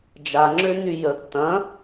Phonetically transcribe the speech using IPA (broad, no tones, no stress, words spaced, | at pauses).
d͡ʒaŋ͡ǁøny jəɡ tɐ̃